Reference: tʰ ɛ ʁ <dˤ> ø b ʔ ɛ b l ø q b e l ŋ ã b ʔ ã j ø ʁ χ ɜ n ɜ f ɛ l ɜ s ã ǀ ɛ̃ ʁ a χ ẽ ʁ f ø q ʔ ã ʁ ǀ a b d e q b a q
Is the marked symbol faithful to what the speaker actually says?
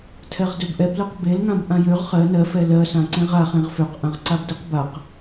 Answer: no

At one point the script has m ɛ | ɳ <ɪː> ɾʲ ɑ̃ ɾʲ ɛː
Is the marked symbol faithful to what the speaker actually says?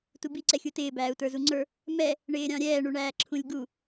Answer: yes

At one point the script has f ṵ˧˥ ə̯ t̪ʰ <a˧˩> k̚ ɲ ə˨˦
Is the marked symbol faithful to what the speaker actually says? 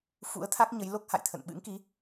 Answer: no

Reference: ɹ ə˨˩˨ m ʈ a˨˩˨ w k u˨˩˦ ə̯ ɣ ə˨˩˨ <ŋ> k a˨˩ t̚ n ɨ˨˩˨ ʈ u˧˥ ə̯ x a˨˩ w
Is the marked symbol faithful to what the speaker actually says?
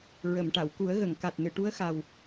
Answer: yes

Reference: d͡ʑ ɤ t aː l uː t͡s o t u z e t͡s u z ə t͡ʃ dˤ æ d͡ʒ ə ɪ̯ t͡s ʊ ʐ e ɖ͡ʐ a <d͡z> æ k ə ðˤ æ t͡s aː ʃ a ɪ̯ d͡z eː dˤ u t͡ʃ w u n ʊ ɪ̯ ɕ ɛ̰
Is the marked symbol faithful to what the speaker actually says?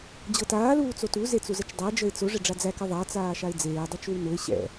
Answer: yes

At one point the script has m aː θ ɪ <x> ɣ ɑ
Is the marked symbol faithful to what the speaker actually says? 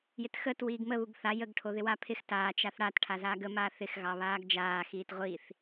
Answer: yes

